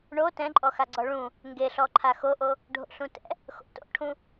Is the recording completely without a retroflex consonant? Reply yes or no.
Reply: no